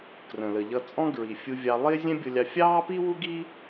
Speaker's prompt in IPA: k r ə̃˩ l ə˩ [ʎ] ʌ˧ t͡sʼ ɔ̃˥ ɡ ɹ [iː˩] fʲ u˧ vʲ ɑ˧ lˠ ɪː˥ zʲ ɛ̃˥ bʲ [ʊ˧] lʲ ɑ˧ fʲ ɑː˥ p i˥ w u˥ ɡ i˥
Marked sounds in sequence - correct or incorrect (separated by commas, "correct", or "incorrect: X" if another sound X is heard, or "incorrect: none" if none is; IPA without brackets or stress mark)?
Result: correct, incorrect: i˩, correct